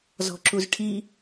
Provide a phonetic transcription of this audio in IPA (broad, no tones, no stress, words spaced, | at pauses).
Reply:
zɔ̤ǁuzʈʰi